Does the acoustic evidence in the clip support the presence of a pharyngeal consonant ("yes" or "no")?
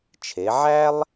yes